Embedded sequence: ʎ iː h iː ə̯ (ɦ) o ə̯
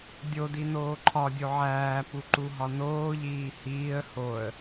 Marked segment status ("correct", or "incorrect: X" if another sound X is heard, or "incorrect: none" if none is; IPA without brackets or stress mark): incorrect: h